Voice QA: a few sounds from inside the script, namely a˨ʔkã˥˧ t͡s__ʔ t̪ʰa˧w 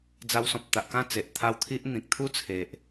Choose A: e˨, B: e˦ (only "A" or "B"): A